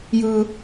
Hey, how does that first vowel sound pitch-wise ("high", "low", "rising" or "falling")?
high